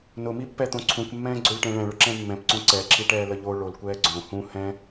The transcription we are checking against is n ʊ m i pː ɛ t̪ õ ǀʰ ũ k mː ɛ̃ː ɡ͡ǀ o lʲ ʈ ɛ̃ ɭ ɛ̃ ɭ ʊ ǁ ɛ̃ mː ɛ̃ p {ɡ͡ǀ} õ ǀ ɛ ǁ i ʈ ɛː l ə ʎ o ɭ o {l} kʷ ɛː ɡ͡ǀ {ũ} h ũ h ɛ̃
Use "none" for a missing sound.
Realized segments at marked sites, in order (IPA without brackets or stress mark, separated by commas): ǀ, l, õ